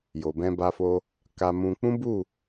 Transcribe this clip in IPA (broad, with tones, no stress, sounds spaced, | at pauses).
j o˨ b ɛ̃˧ b a˧ f o˧ | k a˧ m ũ˧ k͡p ũ˦ b u˦˨